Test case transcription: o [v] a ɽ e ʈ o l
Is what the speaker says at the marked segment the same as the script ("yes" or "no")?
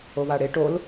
no